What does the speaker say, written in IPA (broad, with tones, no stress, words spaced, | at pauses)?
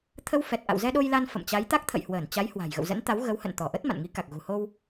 t̪ʰə˧wfɛ˨˩t̚ʔa̰˧˨w zɛ˧ɗo˧jla˧n fə̰˧˨mt͡ɕa˨˦j t̪a˦˥k̚t̪ʰə̰˧˨j hwəː˧˩nt͡ɕa˨˦j hwa̤˨˩jɣə̰˧˨wzə̰˧˥nt̪a˨˦w ɣə˨˦whə̰˧˨nt̪ɔ˧˩ʔə˦˥t̚ ma̰˧˨nŋi˨˦ka˨˩k̚ ɣṳ˨˩ho˧w